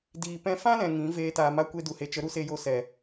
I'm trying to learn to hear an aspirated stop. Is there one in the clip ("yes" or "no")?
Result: no